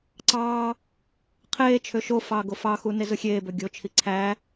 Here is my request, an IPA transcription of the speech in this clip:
ǀɑː | qʰeːt͡ʃʰø ʃo fɑːɡofɑxu nezɯxʲeːbø ɡʲot͡ʃʰi ǀʰæ

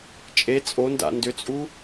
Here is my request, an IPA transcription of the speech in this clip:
t͡ʃʼe t͡sʼonda̰ ndʏt͡sʼu

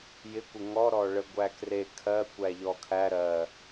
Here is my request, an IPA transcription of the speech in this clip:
jɪkʷɪ ŋɔ ɾɔɭə ɡʷækre kʰɜ kʷæʎɔkʰæ ɾɜ

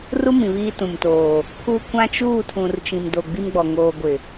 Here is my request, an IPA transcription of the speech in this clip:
ru˦ mĩ˨βiː˦tũ˨mtoː˨ | pʰu˦ kʷã˦t͡ʃuː˦˨tʰũ˨r t͡ʃĩ˨mdo˨ ɡ͡bi˦mɡ͡bɔ˨ ŋoː˨ɡʷɪ˨

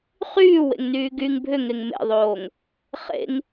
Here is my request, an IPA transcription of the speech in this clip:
χyːwḛŋnyː ɡyŋ bʱʏŋeŋ mḛðˤoːŋ | χḛŋ

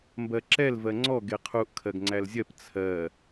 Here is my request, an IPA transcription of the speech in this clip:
mbɜǁɛl vɜŋ͡ǀɔ ɡeqʰuʔ kʰɜɡŋ͡ǀælzʲɜp t͡sʰɜ

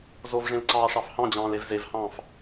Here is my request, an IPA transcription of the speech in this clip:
zovʐẽlǀɑː ʂɑfhɑ̃d͡ʑɑ̃ːl evzevhɑ̃ːf

